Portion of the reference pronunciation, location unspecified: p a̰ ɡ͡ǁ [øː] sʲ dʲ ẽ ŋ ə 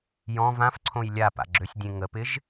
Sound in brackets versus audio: incorrect: ø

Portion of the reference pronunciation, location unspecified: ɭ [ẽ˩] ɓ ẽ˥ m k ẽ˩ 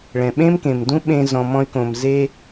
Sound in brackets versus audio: incorrect: ɛ̃˩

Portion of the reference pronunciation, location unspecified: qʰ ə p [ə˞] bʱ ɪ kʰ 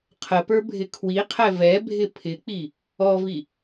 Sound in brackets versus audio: correct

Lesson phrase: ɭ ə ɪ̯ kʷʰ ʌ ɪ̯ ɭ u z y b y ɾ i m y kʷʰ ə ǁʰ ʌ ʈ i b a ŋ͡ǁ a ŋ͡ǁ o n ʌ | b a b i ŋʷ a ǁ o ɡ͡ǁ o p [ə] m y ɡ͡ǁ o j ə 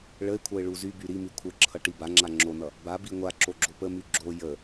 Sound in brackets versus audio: correct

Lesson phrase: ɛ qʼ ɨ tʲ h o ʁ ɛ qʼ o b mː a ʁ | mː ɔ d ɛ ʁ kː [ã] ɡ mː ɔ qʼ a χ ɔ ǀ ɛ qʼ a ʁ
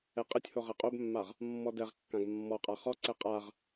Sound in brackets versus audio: correct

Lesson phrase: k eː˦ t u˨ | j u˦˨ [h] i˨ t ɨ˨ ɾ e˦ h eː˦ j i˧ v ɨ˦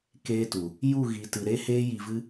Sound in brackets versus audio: incorrect: ɣ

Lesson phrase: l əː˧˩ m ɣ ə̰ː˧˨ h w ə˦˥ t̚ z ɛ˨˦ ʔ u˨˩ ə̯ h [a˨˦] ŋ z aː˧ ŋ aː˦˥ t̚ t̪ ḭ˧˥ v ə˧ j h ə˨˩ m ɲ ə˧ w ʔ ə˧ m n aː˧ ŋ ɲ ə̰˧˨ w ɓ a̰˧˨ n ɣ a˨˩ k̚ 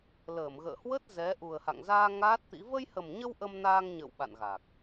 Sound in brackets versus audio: incorrect: a̰˧˨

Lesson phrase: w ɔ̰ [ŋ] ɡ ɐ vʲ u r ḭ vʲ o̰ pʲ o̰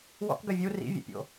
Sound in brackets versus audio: incorrect: k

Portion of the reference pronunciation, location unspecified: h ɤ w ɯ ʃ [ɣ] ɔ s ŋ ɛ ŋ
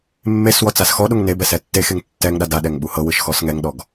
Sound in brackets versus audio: incorrect: x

